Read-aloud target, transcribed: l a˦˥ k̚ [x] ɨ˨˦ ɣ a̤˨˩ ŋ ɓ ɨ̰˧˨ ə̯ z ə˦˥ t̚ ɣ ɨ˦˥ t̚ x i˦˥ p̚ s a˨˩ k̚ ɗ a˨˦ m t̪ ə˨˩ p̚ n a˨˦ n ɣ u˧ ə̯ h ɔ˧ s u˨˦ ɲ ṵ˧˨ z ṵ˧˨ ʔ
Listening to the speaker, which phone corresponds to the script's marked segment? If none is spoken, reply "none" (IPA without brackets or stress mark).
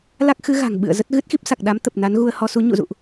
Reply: x